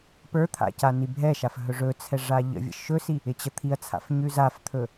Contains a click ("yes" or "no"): no